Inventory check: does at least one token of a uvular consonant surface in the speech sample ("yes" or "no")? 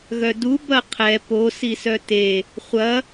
yes